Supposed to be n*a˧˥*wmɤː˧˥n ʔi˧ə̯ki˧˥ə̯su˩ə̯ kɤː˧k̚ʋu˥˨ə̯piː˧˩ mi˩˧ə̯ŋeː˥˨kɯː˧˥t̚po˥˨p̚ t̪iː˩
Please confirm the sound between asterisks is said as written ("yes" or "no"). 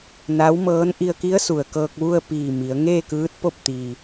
yes